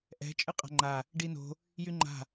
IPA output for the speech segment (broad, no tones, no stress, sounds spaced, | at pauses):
ʔ ɛ̤ t͡ʃʼ ɨ qʼ a̤ ŋ͡ǃ a | ɖ i n o̤ | j y ŋ͡ǃ a̤